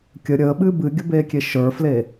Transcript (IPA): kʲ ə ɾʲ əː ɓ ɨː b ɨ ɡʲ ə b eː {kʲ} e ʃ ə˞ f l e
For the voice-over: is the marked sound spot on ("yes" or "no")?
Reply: yes